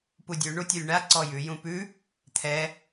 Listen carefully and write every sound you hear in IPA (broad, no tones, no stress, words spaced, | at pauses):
pudʲʉ ɳutʲʉlʲɳa ǀɔjʉ jũpʉ | t̪ʰɛ